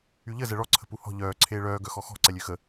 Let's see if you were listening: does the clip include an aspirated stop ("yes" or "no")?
yes